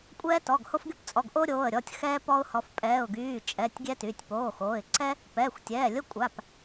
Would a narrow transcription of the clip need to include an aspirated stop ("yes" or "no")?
no